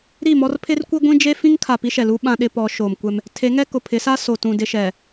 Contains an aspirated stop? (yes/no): yes